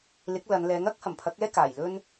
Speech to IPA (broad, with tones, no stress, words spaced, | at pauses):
lɪ˨˥k̚lɐ˨˧nlɛː˨˥ŋ ɐ˥k̚ hɐ˨˩mpʰɐ˨˥k̚ɛː˥ kaː˨˩j lɵ˧n